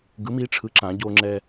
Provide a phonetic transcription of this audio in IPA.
ɡɯ˨˥mi˨˥ ʈ͡ʂʰɯ˨˥ǁã˧˩˧ ɟo˧ŋ͡ǁɛ˧

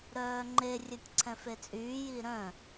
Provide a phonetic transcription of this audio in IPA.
ɾœːŋ͡ǃe rʲœtʲǀʰɛ̃fet͡sʼyː jiɾœ̃

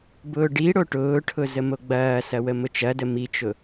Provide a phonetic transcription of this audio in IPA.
bʊːɖi ɽoʈʊːʈʰʊ zəmoɡ͡bɐːsɐ wəmʊt͡ʃɐdə mit͡ʃʊ

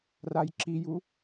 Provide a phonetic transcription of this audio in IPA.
rajǁiju

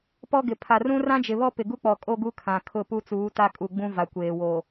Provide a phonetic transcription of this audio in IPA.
pɔ˦ɡɪ˨ pʰa˨rũ˦ rã˦d͡ʒɪ˨βɔ˦ pɪ˨ɡu˦ k͡pɔ˨kʼo˦ɡu˦ kʰã˨kʰʊ˦˨ pu˦t͡suː˨˦ta˦kʼu˨ ɡ͡bũ˦va˨kʷeː˨wo˨

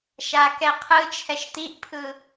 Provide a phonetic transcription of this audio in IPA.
ʃakɛqʰɯt͡ʃʰɛʃ t̪iʔpʰɯ

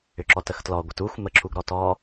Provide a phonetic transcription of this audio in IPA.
ʏǁɔtəxtlɔ ɡʷətuxʷ məǁuɡ ɾɔtɔ

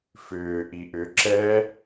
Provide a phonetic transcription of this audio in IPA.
fʏː ʔiʔʏ ǁɛ

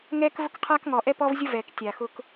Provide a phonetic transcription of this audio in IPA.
ŋɛː˦k vʊ˦kqʰaː˦kŋɔː˨ʔɛ˦ pɔ˦vzʲʊ˦ vɛː˨ktʲa˨ xʊ˦k

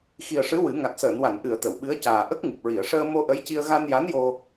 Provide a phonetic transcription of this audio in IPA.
xi˨˩ə̯ʂɨ˧˥ wɨ˨˩˦ ŋa˨˩t̚səː˨˩˨nwa˨˩˨n ʔɨ˨˩˨ə̯ t̪ə˨˩˨wɓɨ˧˥ə̯ caː˨˩ ʔə˦˥k̚ŋɨ˨˩p̚ɹi˨˩˨ə̯ ʂəː˧mo˧ ʔə˧˥jci˧ə̯ ɣa˧nja˧˥njo˧

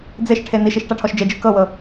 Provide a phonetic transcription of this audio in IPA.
d͡zeʃʈʰe niʃiʃ ʈaʈʰɔʃd͡ʒed͡ʒɯ kɤwɤ

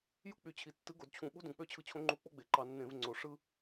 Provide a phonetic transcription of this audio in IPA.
ju˦k͡py˨˩t͡ɕʰi˨˩ tːɯ˨˥ɡo˩˧dt͡ɕʰũ˧˩˧ ɓu˦dũ˨˩k͡pø˦ t͡ɕʰɯ˨˥t͡ɕʰõ˨˥ŋ͡ǃu˨˥ k͡po˦ɡ͡be˩˧ǃɑ˧˩˧ nːẽ˧˩˧vŋ͡ǀo˨˩ ʂɯ˦

